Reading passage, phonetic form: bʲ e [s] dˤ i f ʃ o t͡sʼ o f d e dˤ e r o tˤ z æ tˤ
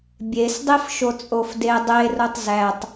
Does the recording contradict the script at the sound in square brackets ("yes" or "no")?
no